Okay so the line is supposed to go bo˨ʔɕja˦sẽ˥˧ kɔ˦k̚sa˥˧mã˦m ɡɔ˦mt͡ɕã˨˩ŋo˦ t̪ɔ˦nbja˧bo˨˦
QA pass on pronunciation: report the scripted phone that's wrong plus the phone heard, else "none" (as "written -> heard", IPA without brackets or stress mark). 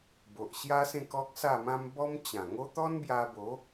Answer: ɡ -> b